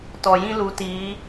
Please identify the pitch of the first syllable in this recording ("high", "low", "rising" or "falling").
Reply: low